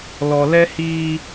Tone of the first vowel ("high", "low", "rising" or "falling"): low